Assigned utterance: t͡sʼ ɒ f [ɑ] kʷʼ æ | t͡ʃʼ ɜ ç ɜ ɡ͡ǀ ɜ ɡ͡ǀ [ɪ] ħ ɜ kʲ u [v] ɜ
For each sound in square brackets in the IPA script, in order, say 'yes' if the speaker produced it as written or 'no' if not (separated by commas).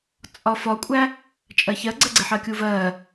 no, yes, yes